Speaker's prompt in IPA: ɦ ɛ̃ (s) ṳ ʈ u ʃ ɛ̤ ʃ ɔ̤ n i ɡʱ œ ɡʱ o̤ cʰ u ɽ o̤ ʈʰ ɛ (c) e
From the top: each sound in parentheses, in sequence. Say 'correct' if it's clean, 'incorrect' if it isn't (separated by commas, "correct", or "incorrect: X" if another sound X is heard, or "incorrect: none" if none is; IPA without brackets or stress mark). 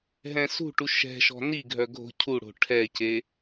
correct, correct